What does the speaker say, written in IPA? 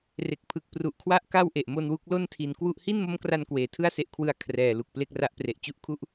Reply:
r e˨˩ k̚ pʰ ɯ˨˩ k̚ p r u˨˩ ʔ kʰ w a˥˩ ʔ k a˥˩ w ʔ e˨˩ ʔ m o˧ n w u˦˥ k̚ l o˥˩ n tʰ i˨˩ n k w u˥˩ ʔ h i˥˩ n m o˦˥ m k r a˧ n k w eː˩˦ tʰ ɯ˥˩ a̯ s e˦˥ ʔ kʰ w ɯ˧ a̯ kʰ r ɛː˨˩ l u˨˩ k̚ p l e˥˩ k̚ r a˦˥ ʔ p r e˨˩ ʔ t͡ɕ u˦˥ ʔ kʰ u˥˩ ʔ

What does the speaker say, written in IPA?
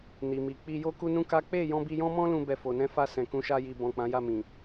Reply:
n i˨ m i˨ k͡p i˧ j o˦ k u˦ n ũ˦ k a˦ k͡p e˦˨ j ɔ̃˧ b i˧ j ɔ̃˦ m ɔ̃˦ l ũ˦ b ɛ˧ f o˨ n ɛ̃˧ f a˧ s ɛ̃˨ k ũ˨˦ ʃ a˧ j i˨ b ɔ̃˨ k͡p ã˨˦ j a˦˨ m ĩ˨

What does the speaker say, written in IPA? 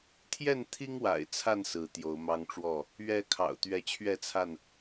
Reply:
t̪ʰ j ɛ˥˨ n t̪ʰ i˦ ŋ w a̰˨˩ ɪ̯ t͡sʰ a˥˨ n s ɹ̩˨˦ t̪ j o˨˦ ʊ̯ m ɑ˦ ŋ ʈ͡ʂ w ɔ˥˨ | ɥ ɛ˨˦ kʰ ɑ̰˨˩ ʊ̯ t̪ ɥ ɛ˨˦ t͡ɕʰ ɥ ɛ˥˨ t͡sʰ a˥˨ n

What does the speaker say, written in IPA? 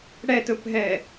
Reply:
ɽ ɛ t ɵ p ɦ ɛ

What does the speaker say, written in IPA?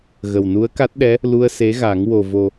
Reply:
ɣ ə˨˩ w n u˧˥ ə̯ k a˦˥ t̚ ɗ ɛ˧˥ | l u˧ ə̯ s e˧˥ ɣ a˨˩˦ ŋ w o˨˩ v o˨˩

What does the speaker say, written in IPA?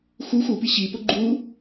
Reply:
x u x u p i ɕ i p ʊ ɡ͡ǃ u

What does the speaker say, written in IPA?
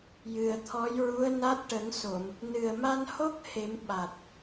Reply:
j ɨ˨˩ ə̯ t̪ʰ ɔ˧˥ j ɹ u˧˥ ə̯ n a˦˥ t̚ ʈ ə˨˩˦ ŋ s o˨˩˨ m | n ɨ˨˩ ə̯ m a˧ n h o˦˥ k̚ h e˨˩˦ m ɓ a˨˩ t̚

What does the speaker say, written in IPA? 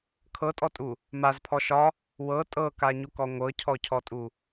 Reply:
kʰ ɤ tʼ ɔ tʼ u | m a z pʰ ɔ ʃ ɒ | w ɤ tʼ ɤ k a ɲ u k ɔ ŋʷ ɤ cʰ ɔ cʰ ɔ tʼ u

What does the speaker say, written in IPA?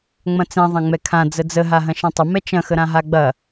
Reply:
ŋ͡m ɐ̃ t͡s ɛ̃ ðˤ ɐ̃ ŋ͡m ɛ kʰ ã d͡z ə d͡z ə ɦ a ɦ ɐ̃ ʃ ɛ̃ tˤ ə m ɛ t͡ʃ ɐ̃ x ə ɾ ã ɦ a ɡ͡b ɐ

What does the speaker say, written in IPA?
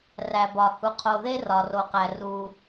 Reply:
r æ˩ b ɒ˩ h u˩ qʰ o˩ ð e˥ r ɒ˩ r o˩ q æ˩ r u˩

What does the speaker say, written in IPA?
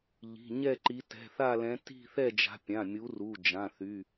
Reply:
ʎ i̤˩˧˩ ɲ ɛ˥˧ ǃ i˨˦ t ɛ̤˩˧˩ θ a˥˧ l ɛ̃˨˦ t i̤˥˧ θ ɛ˥˧ d͡ʒ a̤˨˦ pʲ ã˩˧˩ mʲ u˨˦ r u˩˧˩ d͡ʒ ã˩˧˩ θ y˩˧˩

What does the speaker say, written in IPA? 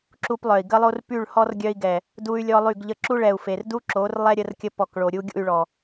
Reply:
ǁ u˦ p lˠ œ˨ i̯ ɡ ə˦ lˠ o˦ r p y˦˨ ɭ h ɔ˦ r ɡʲ œ˦ i̯ ɡ ɛ˨ | d u˦ y̯ lʲ ɔ˦ lˠ y˦˨ ɡ ʎ ə˦ ǁ u˦ ɭ ɛ˨ u̯ f e˨ r d u˦ ǁ o˨˦ r lˠ ɛ˦ ɾʲ ə˦ r kʲ ə˦ p ɔ˨ k ɭ o˨ ɾʲ u˦ ɡʲ ṵ˦˨ y̯ ɭ ɔ˨

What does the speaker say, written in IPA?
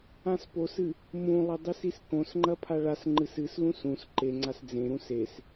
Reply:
ã s p o s ɨ | m ũ lˠ ɐ dˤ i s i s k õ s ŋ͡ǃ ɐ pʰ a ɭ a s ŋ͡ǃ ɨ s ɨ s l ũ s ũ s ǃ e ŋ͡ǀ a s d͡z ẽ ɾ ũ s e s

